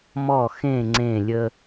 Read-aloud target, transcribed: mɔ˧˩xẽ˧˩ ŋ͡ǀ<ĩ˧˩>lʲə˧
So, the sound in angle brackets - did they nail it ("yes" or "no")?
no